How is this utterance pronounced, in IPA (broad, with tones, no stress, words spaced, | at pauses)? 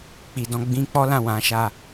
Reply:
k͡pi˨dɔ̃˧ɡ͡bĩ˦ k͡pɔ˦ lã˦˨wã˨˦ʃa˦˨